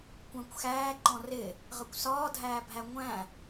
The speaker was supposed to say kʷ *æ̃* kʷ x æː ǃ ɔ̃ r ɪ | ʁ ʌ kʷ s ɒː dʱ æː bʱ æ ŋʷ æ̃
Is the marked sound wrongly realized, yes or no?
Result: no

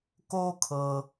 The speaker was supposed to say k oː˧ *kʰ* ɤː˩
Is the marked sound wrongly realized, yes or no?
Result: no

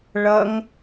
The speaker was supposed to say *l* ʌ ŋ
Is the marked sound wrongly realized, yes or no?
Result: yes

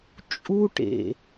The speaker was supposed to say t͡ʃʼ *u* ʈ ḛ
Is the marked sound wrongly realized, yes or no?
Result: no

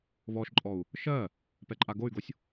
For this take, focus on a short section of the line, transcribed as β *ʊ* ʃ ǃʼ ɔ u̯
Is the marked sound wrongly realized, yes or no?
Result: yes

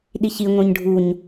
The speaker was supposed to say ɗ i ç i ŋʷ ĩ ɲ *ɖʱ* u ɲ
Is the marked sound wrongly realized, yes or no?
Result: no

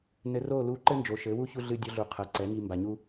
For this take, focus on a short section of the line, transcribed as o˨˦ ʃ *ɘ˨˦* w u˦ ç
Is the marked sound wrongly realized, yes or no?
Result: no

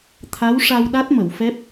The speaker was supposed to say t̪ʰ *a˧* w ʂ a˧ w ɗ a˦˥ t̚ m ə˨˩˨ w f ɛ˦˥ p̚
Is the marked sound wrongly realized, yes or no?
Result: yes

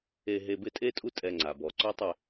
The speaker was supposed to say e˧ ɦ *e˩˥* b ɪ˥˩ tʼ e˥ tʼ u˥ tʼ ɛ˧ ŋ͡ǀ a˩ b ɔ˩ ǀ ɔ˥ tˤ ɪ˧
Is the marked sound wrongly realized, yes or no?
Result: yes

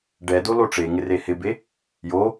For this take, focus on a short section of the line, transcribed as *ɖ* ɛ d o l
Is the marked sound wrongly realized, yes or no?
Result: no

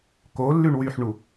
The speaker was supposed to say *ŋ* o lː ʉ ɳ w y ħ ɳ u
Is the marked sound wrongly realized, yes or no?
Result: yes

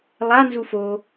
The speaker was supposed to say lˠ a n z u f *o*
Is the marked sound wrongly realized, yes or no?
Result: no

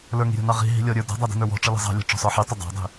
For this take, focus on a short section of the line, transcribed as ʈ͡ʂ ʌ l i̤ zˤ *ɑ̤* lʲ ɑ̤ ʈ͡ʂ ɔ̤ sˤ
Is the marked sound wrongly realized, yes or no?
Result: no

